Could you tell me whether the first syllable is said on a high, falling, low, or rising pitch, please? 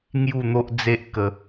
falling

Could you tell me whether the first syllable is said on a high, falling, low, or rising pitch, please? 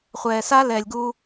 low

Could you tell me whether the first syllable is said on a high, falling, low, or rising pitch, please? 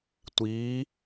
rising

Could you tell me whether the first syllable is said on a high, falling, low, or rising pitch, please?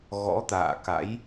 rising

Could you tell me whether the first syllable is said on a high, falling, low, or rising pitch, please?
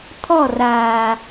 falling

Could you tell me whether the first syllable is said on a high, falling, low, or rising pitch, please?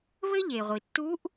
high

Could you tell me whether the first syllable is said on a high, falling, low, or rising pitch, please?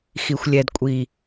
low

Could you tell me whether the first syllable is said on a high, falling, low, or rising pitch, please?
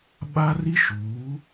high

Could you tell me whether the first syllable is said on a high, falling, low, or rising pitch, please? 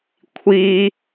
high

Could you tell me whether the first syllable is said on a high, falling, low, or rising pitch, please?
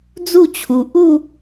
falling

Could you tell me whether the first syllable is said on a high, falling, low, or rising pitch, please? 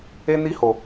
high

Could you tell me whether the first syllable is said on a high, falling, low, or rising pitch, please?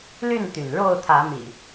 falling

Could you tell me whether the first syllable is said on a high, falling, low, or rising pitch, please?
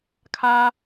high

